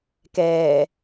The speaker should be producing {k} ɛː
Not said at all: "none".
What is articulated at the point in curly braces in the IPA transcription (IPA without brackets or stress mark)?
k